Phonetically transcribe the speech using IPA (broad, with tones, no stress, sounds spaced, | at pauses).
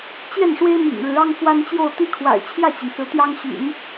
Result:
t͡ɕ j ɛ˥˩ n ʂ w e˥ ɪ̯ m ḭ˨˩ ŋ ɻ ɻ̩˧˥ ɑ˥ ŋ f w a˥ n t͡ɕ j o˥˧ ʊ̯ t̪ i˥˩ kʰ w a̰˨˩ ɪ̯ t͡ɕʰ j ä˥˩ t͡ɕ i˩ n s ɹ̩˧˥ t̪ j ɑ˥ ŋ ɕ y̰˨˩˦ n